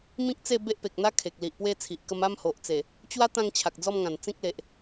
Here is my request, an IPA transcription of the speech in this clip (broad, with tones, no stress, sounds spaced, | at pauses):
m ĩ˦ k̚ t͡s e˥˧ b e˦ ʔ p e˨ k̚ n̪ a˦ kʰ e˨ k̚ l i˨ ʔ p w e˥˧ t͡sʰ i˨ ʔ k ə˧ m a˦ m h o˨ ʔ t͡s e˨˩ | t͡ɕ w a˦ t̪ ã˥˧ ŋ t͡ɕʰ a˨ k̚ d͡z ɔ˥˧ m ŋ ã˨˩ n t͡s ĩ˦ k̚ l e˨ ʔ